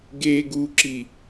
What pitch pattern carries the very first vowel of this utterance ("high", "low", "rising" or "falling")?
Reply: low